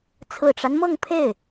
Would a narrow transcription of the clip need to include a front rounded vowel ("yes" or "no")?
no